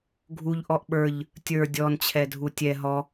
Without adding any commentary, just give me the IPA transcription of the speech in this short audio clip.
ɡʱ u ʎ ʔ ɔ ʔ ɓ ə˞ ʎ | tʲ ə˞ dʲ ɔ n t͡ɕʰ ɛ dʱ u tʲ ɛ ɦ ɔ

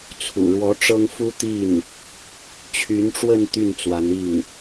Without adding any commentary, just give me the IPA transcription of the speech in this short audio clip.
t͡sʰ ṵ˨˩ ɻ w ɔ˧˥ ʈ͡ʂ ɤ˥ ŋ f u˥ t̪ i˥˩ n | t͡ɕʰ y˧˥ n ʈ͡ʂ w ə˥˧ n t̪ y˥˩ n t͡s w a˧˥ n i˥˩ ŋ

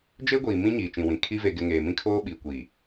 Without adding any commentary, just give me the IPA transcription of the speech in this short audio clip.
d͡ʒ e˦ ɡʷ iː˨ m ĩ˦ ɲ iː˨ t͡ʃ ĩ˨ w ĩ˨ kʰ i˦ v e˨ ɡ ɪ˨ ŋ eː˨ m ĩ˦ kʰ oː˦ ɓ iː˨ kʷ iː˨

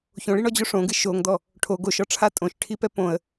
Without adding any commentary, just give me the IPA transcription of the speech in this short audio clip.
ç õ ɭ i ɳ ɔ d͡ʑ o ʂ õ ɡ ɨ ʃ o ŋ d̪ ɔ | ʈʰ o ɡ o ʃ ɔ ʈ͡ʂʰ a tʼ õ ʃ ʈʰ i p ɛ p õ ə̯

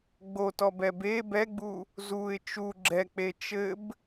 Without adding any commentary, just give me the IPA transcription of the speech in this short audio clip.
ɡ͡b o t ɔ b ɛ b e b ɛ ɡ͡b u | z u ɪ̯ t͡ʃ u ɡ͡ǁ ɛ k͡p e t͡ʃ ɘ b

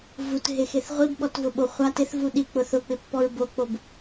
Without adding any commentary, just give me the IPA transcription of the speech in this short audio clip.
v u t ɦ e x e θ ʁʷ i b ɓ ɔ t v ʊ ɓ o χʷ a t ɪ θ v u ɗ i k͡p ʊ θ ʊ k͡p ɪ pː ɔ ɹ b o k͡p o b

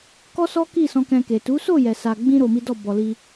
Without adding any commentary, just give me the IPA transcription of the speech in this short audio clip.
k ɔ˦ s ɔ˦ k i˦˨ s ɔ̃˧ k ɛ̃˧ k e˨ t u˨˦ s o˦˨ j ɛ˨ s a˨ ɡ͡b ĩ˧ ɾ o˧ m i˦ d ɔ˦˨ b ɔ˧ l i˧

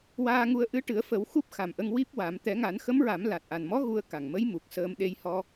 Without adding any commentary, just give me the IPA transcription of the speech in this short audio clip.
w aː˧ ŋ u˧ ə̯ ʔ ɨ˧˥ ʈ ɨ˨˩˦ ə̯ f ə˨˩˦ w x u˦˥ p̚ x a˨˩ m ʔ ə˧ ŋ w i˦˥ p̚ w a˨˩˦ m t̪ ɛ˨˩˦ ŋ a˨˩˦ n x ə˧˥ m ɹ a˨˩˦ m l a˨˩ t̚ ʔ a˨˩ n m ɔ˧˥ ɣ u˧ ə̯ k a˨˩ ŋ m ə˧˥ j m u˨˩ k̚ s əː˧ m ɗ e˧ j h ɔ˧

